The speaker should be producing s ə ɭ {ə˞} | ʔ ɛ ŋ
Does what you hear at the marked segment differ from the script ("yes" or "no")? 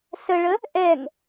yes